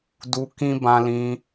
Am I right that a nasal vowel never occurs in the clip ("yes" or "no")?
no